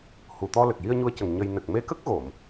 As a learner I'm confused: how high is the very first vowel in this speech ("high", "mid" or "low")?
high